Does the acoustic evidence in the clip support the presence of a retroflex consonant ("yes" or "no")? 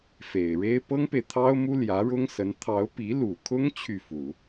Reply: yes